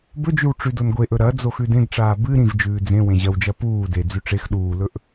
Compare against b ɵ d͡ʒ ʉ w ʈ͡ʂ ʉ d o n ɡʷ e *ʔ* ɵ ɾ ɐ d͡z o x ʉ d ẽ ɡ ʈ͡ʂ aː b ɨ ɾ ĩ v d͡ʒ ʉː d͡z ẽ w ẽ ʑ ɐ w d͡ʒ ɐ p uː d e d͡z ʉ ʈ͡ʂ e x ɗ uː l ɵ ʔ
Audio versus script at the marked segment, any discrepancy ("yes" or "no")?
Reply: no